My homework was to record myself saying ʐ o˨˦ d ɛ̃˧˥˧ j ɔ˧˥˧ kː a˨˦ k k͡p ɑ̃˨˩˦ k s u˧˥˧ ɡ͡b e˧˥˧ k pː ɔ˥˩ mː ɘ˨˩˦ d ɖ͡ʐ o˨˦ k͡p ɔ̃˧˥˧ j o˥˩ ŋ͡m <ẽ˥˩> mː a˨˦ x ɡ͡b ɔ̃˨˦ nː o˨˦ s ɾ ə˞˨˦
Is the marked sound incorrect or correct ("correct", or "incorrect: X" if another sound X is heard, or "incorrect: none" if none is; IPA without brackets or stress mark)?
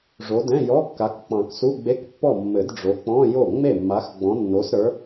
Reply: incorrect: e˥˩